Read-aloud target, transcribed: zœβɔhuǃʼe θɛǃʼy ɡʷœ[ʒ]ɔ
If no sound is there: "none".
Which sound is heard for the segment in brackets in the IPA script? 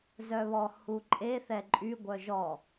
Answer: ʒ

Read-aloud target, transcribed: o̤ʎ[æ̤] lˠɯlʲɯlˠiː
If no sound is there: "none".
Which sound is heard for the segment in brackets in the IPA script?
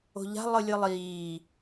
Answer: a̤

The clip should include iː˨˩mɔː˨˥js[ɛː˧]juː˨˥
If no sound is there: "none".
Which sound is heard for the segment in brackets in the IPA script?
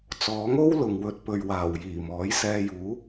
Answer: ɛː˧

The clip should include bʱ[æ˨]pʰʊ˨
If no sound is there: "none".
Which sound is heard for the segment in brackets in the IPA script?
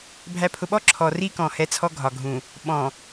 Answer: æ˨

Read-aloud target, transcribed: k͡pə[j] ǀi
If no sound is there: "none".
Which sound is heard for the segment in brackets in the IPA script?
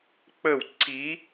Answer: w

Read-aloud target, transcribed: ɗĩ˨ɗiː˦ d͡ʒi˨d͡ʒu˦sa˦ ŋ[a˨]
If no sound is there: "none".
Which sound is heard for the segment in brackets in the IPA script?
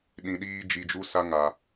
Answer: a˨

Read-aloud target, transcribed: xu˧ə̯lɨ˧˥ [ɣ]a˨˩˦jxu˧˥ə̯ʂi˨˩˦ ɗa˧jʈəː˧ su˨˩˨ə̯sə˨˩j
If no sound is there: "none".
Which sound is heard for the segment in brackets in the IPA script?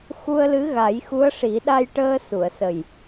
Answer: ɣ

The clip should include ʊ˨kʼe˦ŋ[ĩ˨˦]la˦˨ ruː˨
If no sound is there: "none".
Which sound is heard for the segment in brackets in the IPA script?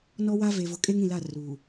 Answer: ĩ˨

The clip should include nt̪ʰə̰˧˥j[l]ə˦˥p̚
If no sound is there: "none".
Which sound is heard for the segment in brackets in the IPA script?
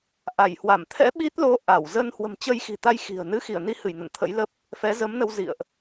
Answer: l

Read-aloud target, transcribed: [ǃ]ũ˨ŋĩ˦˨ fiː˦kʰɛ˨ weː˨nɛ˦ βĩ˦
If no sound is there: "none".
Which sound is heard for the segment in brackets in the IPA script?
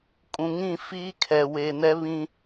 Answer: kʼ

